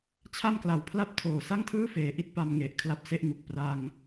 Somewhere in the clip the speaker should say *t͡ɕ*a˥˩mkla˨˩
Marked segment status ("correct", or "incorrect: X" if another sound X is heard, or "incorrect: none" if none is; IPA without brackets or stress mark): incorrect: t͡ɕʰ